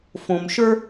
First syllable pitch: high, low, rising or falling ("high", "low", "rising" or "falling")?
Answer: low